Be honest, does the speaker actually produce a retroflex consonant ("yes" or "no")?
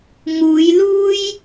no